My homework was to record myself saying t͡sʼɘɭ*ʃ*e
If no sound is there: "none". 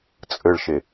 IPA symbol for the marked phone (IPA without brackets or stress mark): ʃ